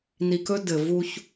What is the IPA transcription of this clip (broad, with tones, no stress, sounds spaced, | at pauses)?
n i˨ k ɵ˦ d ɘ˨ v u˦ ç